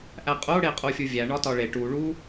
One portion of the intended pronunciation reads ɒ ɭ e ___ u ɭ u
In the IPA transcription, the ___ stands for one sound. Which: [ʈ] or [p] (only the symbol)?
ʈ